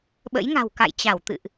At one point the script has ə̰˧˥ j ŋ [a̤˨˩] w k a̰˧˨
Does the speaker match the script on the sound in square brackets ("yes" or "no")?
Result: yes